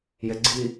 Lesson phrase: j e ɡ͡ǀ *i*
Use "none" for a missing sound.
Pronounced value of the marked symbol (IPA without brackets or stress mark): i